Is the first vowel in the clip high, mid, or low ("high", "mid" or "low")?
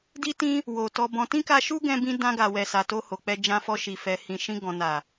high